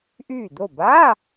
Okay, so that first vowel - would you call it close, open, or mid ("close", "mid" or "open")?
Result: close